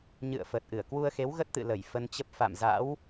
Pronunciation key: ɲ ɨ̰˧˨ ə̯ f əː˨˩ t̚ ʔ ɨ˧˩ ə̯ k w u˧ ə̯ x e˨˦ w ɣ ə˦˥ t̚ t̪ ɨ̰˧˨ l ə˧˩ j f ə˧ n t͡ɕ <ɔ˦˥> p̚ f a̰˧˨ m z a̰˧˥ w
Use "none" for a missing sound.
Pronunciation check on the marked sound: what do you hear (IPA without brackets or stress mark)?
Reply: ə˦˥